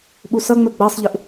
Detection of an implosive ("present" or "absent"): present